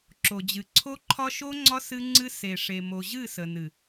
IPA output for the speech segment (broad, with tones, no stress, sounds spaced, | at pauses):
ǁ o˨ d͡ʑ ɨ˨ ǀʰ o˦ ǃʰ ɒ˦ ʃ o˦ ŋ͡ǀ ɒ˦ s ɨ˦ ŋ͡ǀ ɨ˦ s e˨ ʂ e˨ m o˨ ʑ ɨ˦˨ s ə˨ n ɨ˨